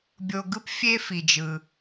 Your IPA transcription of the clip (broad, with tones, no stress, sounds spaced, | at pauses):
bʲ o˧ ɡ ɯ˥ p fʲ e˥ f i˩ d͡ʒ ɯ˩